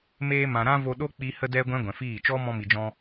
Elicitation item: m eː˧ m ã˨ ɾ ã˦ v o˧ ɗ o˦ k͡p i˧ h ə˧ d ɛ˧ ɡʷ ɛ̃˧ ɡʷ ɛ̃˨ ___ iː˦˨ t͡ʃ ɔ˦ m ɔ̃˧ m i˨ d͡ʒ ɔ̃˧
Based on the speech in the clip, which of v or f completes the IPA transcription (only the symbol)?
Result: f